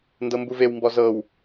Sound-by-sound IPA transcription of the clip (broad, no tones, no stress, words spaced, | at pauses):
ndɤmbuvewmbɔ zɤw